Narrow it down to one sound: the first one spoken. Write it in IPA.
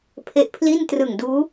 pʰ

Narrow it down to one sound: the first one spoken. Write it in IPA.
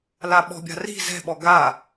l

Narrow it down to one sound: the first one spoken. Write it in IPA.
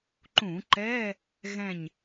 ǃ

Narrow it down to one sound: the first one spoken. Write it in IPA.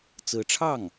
t͡s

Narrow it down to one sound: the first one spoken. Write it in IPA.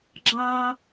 ɡ͡ǁ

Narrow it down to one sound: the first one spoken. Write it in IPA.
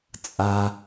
t͡sʼ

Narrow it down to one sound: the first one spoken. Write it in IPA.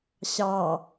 ɕ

